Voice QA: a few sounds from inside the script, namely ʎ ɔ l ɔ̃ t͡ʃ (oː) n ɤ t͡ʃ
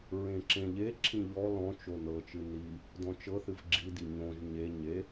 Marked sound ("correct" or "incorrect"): incorrect